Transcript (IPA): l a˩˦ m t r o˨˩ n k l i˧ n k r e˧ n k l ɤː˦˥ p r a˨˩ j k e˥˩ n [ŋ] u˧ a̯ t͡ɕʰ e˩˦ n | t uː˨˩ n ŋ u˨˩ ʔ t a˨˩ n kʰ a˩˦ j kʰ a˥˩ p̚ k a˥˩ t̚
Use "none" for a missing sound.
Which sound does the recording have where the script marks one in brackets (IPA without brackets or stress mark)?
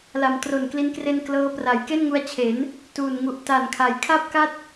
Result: ŋ